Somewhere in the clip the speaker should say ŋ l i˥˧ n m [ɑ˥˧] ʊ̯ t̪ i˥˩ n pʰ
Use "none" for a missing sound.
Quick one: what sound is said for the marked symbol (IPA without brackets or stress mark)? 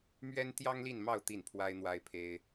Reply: ɑ˥˧